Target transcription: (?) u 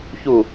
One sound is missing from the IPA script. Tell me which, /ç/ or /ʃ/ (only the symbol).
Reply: ç